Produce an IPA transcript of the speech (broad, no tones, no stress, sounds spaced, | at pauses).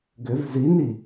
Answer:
ɡ ʏ v z i n i